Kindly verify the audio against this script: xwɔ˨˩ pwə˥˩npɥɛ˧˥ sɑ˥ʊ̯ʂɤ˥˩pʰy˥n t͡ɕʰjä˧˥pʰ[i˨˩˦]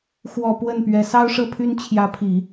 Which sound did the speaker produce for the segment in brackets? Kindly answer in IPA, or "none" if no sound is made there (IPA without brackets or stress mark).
i˨˩˦